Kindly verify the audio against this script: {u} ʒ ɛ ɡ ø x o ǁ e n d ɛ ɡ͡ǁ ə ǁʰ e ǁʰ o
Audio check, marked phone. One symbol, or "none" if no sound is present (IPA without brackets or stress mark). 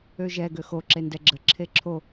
ø